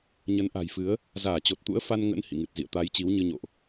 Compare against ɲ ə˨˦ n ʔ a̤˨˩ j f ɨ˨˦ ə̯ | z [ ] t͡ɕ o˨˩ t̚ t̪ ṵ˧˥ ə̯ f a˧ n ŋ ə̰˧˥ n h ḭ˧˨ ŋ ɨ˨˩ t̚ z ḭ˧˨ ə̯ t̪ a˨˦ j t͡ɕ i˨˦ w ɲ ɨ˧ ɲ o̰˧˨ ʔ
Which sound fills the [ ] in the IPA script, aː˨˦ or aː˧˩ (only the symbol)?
aː˧˩